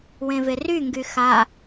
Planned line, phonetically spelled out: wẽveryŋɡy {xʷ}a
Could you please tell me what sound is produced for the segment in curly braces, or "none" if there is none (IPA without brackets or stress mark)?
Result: x